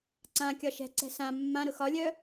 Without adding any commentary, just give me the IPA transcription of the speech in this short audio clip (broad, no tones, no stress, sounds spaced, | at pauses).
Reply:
ǀ ã kʲ ɒ ʃ ɛ̤ ǀ ɛ̤ s ã mː ã ɾ ʊ x ɒ lʲ œ